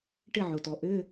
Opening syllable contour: falling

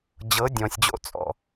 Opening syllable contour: rising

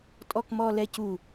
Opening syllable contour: low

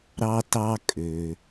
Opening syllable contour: high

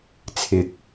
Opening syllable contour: rising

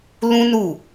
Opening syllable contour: high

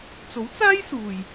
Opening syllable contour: rising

